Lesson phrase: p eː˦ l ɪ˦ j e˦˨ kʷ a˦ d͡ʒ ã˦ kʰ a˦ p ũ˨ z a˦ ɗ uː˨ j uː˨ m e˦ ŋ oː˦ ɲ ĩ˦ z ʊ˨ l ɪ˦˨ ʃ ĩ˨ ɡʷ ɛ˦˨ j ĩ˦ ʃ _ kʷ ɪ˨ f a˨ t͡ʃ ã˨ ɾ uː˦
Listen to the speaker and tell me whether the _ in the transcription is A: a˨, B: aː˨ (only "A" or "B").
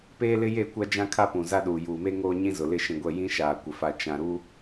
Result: B